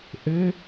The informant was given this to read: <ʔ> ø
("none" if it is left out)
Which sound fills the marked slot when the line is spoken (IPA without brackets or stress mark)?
ʔ